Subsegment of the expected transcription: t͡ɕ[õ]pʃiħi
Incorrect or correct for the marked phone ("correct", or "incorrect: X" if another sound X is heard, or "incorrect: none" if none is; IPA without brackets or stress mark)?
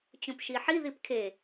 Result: correct